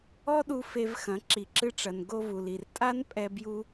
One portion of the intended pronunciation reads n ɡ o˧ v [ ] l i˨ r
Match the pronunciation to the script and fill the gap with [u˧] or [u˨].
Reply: u˨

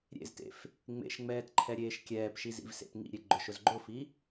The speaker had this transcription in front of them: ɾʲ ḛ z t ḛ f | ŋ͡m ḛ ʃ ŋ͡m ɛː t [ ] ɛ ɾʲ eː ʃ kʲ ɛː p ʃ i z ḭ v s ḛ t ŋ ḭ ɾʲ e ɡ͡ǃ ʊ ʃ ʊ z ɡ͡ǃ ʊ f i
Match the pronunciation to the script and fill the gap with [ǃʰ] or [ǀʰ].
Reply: ǃʰ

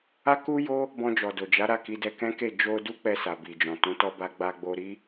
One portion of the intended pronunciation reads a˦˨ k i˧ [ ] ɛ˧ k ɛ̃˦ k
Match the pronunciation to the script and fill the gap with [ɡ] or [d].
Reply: d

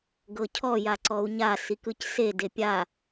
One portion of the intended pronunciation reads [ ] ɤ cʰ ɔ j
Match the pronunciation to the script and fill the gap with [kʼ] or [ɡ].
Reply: ɡ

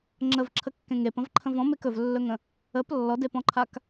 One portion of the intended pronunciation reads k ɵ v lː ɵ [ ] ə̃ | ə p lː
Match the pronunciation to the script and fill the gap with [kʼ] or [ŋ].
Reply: ŋ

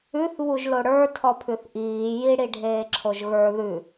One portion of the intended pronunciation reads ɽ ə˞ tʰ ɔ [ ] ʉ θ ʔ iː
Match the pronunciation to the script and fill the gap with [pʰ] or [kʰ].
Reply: pʰ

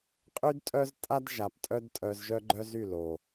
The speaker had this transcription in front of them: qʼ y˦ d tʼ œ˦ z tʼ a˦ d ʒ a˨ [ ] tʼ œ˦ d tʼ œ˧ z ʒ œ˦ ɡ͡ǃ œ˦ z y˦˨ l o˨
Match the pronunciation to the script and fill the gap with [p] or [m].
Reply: p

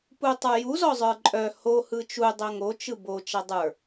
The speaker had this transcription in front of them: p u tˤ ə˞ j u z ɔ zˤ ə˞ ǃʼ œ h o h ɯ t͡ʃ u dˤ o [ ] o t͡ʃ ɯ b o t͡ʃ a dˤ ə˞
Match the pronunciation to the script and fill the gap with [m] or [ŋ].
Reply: ŋ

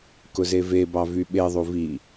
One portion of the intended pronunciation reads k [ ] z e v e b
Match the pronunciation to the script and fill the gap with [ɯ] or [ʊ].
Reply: ʊ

